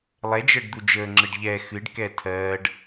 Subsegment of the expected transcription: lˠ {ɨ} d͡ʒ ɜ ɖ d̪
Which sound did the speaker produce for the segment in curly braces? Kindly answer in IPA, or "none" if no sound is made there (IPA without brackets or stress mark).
ɛ